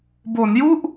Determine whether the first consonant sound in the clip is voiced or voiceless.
voiced